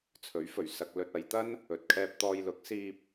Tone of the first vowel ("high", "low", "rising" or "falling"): rising